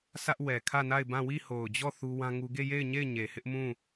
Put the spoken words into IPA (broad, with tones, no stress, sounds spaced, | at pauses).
s ä˦ ʔ w ɛ˨ kʰ ä˦˨ n a˦˨ ɪ̯ b ã˦˨ w i˦˨ h o˨ ʊ̯ d͡ʑ ɔ˦˨ θ u˦ w ã˦ ŋ u˦ ɡ e˦˨ j e˦˨ ɪ̯ ɲ e˦˨ ɪ̯ ɲ e˨ h ɪ˦ ʔ m ũ˦˨